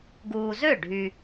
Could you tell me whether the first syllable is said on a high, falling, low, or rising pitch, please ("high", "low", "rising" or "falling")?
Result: low